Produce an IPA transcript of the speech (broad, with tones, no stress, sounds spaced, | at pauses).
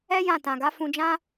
ɛ˦ j ã˦˨ t ã˨ ɡ a˨˦ f ũ˧ d͡ʒ ã˦